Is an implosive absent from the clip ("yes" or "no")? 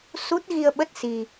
no